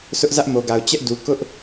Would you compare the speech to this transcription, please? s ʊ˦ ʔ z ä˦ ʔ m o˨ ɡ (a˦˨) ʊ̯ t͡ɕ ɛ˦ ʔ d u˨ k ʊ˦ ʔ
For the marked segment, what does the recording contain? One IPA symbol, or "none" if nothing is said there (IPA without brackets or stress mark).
a˨